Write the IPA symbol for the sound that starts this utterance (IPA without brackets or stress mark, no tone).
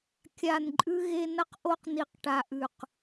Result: kʲ